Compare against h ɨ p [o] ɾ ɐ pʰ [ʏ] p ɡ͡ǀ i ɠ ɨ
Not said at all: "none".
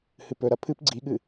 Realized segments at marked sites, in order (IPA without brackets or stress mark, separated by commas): ɵ, ɨ